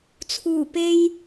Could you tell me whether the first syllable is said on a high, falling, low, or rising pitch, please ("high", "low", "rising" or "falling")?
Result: low